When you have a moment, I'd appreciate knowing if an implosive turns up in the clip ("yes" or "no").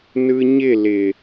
no